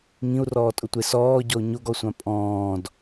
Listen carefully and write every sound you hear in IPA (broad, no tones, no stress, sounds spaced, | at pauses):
ŋ ĩ u̯ r ɔː tʼ ʊ tʷ e s ɔː ɟ ɔ u̯ ɲ o ɡ ɔ sʷ ã pʼ ɔ̃ː d